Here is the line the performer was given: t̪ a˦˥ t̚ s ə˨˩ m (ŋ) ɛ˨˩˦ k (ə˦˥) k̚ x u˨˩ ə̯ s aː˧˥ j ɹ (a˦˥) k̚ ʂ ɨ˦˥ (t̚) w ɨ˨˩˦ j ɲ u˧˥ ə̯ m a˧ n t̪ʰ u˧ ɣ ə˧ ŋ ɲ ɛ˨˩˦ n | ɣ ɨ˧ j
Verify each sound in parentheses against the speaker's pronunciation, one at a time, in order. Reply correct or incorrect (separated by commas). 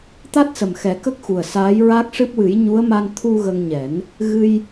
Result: incorrect, correct, correct, incorrect